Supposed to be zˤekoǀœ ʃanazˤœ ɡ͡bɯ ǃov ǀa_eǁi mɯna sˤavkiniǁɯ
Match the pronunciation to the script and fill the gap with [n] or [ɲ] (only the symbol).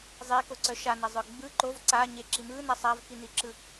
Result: ɲ